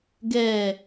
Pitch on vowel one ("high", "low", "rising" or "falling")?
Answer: falling